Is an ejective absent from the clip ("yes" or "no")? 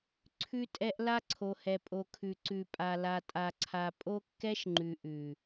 no